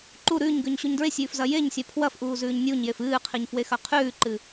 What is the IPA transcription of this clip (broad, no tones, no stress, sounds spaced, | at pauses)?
ǃ u ɾ ʉː ɲ ɡ ʉ ɲ ɕ u ɲ d ɹ e sʲ ʉː f z ɐ j e ɲ sʲ a pʰ w ɐ f ʔ uː z ʉː ɲ nʲ u ɲ j e f ɨː qʰ i ɲ f w e x ɐ qʰ ʉː ǃ ɨ